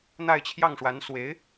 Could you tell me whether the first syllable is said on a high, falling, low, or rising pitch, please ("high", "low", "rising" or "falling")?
falling